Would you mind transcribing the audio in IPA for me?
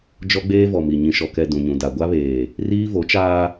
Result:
d͡ʒɔ˦ɡ͡beː˦vɔ˨mi˨ ɲĩ˨ʃɔ˨kɛ˨ dũ˨ɲũ˨ da˨ɡʷa˦βeː˨ | riː˦vo˨˦t͡ʃaː˦

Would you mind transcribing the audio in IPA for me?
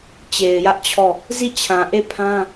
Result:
t͡ɕe˨ɪ̯jä˦ʔt͡ɕʰɔ˦˨ | zi˦˨t͡ɕʰã˨ ʔe˦˨pʰã˦

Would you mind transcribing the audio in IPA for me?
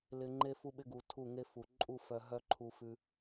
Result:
lɪ˧ ŋ͡ǃe˦fu˦ɓɪ˦ɡu˨ tʰu˦˨ŋe˦fu˨ ǃʼu˦˨ fœ˧ɦœ˦ ǃʰu˧fʉ˧

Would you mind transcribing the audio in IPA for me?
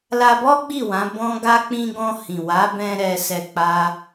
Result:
la˧bɔ˦ ɡ͡bi˦˨wã˨˦ bɔ̃˦ɡa˦ k͡pĩ˧ɡɔ̃˧ hĩ˨wa˨˦ bɛ̃˧ ɾɛ˧sɛ˧ k͡pa˦

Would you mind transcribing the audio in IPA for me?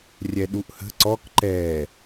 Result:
rʲɛɗuʔhə̤ ǀɔk ǃɛ

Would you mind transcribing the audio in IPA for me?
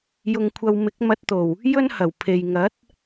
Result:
jʊ˧ŋkʷʰɐ˧w mɪ˨˥k̚mɐ˧t̚t̪o˨˩w | jɵ˥nhɐ˨˩w pʰe˨j ŋɐ˨˥t̚

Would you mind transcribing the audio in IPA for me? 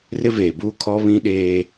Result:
rɪ˦veː˨buː˦ kʰɔ˦βĩ˦ɗeː˦

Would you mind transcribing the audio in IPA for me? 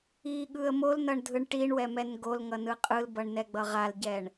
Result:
iɠɯə̯ molnʌɳdʱɯɳ ʈiɳwɛmɛn ɡolŋʌnɯ qʼɯlbʌɳnɛɡ͡bʌ ʁalɟɛɳ

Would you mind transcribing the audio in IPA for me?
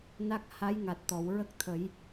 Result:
na˦˥k̚ ha˧˥jŋa˨˩t̚t̪ɔ˨˩˨w ɹə˦˥k̚t̪ʰə˨˩˦j

